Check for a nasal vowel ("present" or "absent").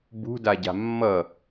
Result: absent